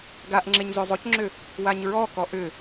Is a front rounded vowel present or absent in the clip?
present